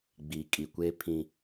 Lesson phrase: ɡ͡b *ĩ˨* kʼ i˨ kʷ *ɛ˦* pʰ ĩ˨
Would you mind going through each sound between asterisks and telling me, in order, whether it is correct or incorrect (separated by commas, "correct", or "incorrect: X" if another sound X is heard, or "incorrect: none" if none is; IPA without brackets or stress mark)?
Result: incorrect: i˨, incorrect: e˦